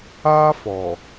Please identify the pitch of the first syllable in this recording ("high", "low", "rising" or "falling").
high